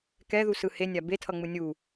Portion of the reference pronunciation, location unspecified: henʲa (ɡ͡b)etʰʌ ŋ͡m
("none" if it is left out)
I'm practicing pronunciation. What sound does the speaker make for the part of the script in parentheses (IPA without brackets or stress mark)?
b